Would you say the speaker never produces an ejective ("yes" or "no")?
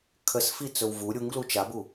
yes